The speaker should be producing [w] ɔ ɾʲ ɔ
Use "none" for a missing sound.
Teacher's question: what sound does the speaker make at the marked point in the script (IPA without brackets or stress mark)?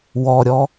w